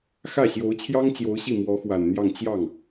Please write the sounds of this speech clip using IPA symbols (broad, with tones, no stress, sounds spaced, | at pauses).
x ä˥˩ ɕ j o˧˥ ʊ̯ t͡ɕʰ j ɑ˥ ŋ t͡ɕ j o˧˥ ʊ̯ ɕ i˥˩ m w ɔ˧˥ x w a˨˩ n n̪ j ɑ˥˧ ŋ t͡ɕ j ɑ˥˩ ŋ